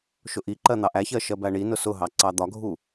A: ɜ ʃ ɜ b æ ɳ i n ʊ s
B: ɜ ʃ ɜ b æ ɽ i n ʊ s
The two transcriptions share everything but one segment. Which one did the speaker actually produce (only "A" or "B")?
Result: A